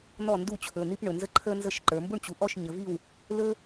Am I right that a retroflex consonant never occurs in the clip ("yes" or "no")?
no